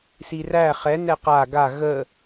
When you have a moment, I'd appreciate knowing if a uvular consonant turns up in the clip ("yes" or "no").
yes